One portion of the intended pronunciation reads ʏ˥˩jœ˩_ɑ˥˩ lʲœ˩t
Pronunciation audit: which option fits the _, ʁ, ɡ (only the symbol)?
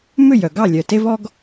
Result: ɡ